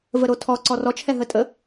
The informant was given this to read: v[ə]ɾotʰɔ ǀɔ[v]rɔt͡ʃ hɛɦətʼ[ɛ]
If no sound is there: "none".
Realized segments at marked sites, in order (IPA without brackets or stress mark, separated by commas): ə, none, ə